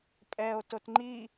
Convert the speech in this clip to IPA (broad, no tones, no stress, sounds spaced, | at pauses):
pʼ ɛ o̯ t o t ŋ͡ǃ i